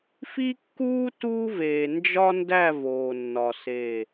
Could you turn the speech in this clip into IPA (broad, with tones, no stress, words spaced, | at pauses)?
fi˦kːuː˦ tuː˦veː˨ nd͡ʒɒ˦ndæ˦˨ voː˨nːɒ˨ se˦˨